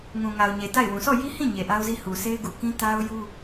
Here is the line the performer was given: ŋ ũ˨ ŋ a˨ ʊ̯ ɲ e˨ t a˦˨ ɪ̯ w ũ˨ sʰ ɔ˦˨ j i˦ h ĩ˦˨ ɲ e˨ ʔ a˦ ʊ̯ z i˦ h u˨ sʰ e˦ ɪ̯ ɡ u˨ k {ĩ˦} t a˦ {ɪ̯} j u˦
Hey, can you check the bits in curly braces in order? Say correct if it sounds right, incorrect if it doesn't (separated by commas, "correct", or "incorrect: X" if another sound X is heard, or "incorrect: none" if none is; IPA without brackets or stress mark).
correct, incorrect: ʊ̯